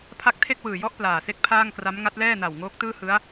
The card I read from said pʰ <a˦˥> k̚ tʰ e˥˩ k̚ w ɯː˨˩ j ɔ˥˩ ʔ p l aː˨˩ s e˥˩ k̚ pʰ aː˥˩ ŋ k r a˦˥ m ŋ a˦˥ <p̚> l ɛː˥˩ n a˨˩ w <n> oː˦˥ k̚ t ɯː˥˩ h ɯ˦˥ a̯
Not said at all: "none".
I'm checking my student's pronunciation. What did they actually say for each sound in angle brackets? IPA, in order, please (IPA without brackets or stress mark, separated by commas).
a˦˥, t̚, ŋ